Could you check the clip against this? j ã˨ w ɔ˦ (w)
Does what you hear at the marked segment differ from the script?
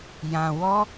yes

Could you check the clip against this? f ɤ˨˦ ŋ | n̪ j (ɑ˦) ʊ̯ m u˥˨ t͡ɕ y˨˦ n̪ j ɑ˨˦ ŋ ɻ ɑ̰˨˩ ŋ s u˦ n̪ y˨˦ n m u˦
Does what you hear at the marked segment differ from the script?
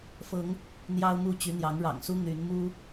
no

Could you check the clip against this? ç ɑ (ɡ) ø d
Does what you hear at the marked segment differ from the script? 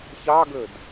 no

